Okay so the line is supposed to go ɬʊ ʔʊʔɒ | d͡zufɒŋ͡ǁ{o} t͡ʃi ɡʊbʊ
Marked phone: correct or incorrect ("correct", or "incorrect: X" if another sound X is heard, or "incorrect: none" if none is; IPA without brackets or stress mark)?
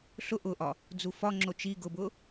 correct